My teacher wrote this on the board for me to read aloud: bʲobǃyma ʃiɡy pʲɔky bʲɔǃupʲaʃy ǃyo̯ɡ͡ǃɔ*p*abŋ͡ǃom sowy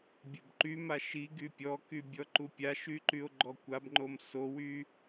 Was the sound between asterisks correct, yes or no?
no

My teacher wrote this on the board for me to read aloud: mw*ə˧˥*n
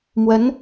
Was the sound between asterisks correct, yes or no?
yes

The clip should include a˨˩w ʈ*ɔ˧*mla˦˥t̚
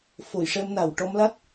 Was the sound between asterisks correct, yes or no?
yes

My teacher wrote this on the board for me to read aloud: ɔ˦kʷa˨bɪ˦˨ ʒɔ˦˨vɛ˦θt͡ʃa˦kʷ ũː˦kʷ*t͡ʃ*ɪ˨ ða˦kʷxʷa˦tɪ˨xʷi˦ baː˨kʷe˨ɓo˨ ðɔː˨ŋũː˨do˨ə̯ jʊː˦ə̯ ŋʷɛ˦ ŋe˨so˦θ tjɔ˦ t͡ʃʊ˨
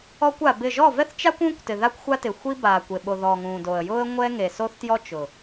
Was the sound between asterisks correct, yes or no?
no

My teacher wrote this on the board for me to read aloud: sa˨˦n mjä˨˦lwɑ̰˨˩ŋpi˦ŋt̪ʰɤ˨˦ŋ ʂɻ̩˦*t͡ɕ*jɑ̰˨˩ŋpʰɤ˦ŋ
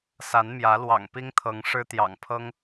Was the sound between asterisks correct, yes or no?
no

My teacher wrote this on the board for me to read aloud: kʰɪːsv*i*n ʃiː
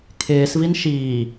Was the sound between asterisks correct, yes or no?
yes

